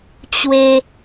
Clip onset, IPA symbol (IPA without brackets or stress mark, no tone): t͡ɕ